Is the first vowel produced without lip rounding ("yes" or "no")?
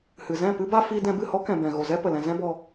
yes